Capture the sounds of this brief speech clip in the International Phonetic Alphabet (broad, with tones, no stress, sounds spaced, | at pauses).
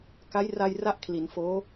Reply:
k a˦˥ j r a˧ j r a˦˥ ʔ kʰ l i˩˦ n f oː˦˥